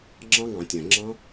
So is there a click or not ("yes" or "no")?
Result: yes